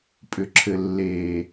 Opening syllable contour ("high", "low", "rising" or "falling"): low